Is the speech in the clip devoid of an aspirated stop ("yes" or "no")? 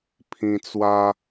no